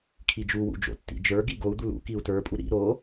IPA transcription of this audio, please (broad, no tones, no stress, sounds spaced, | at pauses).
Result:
kʰ i d͡ʒ u w ṵ d͡ʒ o̰ tː ḭ d͡ʒ ə˞ ɡ i ɡ o u̯ d̪ u l ṵ k i u̯ t ə˞ pʼ u ɾ ḭ ɾ o